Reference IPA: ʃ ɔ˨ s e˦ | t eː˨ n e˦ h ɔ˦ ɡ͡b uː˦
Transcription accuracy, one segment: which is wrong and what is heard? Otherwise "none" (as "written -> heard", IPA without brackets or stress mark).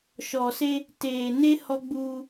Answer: none